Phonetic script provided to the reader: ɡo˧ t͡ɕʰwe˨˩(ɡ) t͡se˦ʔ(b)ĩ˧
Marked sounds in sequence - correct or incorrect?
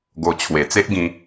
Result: incorrect, incorrect

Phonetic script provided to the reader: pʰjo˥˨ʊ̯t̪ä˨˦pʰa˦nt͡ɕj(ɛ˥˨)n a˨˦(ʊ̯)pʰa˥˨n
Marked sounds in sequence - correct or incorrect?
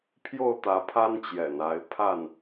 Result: incorrect, incorrect

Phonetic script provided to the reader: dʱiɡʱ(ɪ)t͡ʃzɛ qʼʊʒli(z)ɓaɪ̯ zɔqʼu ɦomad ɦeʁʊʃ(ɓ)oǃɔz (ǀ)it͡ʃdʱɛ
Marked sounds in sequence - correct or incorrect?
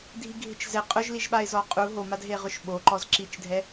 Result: correct, incorrect, correct, incorrect

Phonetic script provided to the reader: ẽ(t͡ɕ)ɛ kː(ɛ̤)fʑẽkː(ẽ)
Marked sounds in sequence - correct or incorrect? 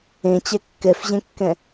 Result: correct, incorrect, incorrect

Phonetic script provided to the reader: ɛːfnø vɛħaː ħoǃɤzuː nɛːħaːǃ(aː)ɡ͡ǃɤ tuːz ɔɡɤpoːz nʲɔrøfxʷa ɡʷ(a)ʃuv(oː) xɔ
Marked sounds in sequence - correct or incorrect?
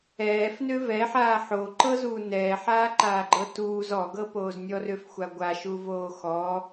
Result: correct, correct, correct

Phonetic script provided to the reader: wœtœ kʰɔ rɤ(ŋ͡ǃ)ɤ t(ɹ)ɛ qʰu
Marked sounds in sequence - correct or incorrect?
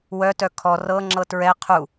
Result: incorrect, correct

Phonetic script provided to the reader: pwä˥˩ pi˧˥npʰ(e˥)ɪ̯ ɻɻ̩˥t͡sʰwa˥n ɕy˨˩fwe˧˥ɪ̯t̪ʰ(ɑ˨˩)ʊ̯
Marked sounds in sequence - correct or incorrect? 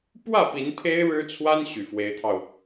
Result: correct, incorrect

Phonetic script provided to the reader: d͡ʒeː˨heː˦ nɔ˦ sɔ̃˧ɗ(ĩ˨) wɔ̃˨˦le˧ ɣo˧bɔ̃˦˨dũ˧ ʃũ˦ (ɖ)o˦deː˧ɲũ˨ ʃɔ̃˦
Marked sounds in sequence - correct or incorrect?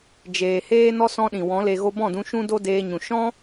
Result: correct, incorrect

